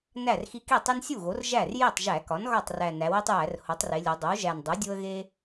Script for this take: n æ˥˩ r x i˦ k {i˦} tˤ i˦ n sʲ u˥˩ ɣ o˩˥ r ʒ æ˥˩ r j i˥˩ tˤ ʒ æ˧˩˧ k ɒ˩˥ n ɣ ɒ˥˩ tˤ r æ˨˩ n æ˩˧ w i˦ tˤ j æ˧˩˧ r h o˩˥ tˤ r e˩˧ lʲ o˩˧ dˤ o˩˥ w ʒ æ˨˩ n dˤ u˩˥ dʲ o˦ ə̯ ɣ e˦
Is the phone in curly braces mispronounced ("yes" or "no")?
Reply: yes